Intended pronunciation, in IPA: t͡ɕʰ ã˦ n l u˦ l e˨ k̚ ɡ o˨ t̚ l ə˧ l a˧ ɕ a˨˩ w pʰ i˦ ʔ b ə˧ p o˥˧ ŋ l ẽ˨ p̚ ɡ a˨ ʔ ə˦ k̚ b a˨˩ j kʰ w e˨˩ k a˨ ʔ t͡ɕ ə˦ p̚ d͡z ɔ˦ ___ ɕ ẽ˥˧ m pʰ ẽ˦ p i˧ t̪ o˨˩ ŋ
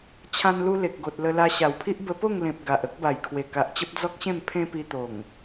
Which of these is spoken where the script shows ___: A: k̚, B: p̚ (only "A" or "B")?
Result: A